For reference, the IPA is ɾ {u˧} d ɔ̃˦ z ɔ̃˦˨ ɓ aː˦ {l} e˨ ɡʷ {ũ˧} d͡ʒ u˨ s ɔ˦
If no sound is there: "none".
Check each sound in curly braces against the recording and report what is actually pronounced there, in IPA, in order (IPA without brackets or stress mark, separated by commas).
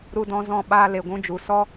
u˦, l, ũ˧